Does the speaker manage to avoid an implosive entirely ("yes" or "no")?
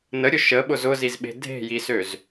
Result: no